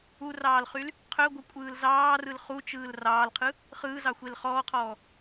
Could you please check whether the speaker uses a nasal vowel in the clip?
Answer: no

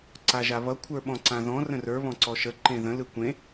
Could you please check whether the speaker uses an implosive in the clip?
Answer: yes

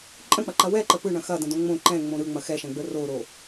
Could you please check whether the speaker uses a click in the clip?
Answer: yes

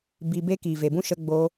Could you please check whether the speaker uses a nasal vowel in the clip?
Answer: yes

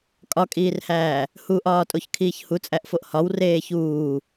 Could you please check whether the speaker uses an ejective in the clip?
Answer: yes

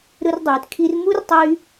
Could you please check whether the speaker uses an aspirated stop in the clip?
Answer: yes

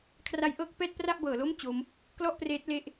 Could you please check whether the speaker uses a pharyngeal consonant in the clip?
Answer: no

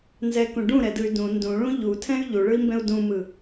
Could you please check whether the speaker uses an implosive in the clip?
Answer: no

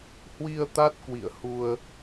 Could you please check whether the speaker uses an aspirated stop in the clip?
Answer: no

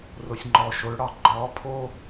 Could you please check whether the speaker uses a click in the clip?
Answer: yes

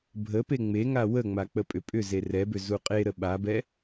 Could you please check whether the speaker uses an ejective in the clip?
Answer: yes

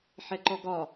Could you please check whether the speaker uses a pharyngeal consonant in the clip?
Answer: yes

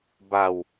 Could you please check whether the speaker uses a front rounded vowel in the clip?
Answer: no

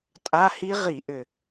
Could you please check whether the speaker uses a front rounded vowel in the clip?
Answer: yes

